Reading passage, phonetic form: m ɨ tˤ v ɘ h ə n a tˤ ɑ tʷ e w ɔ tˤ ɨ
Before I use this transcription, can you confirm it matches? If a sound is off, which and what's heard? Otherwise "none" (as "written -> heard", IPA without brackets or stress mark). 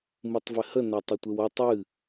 ɑ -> ə